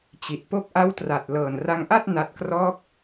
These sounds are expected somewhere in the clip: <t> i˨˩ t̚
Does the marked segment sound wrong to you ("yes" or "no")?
yes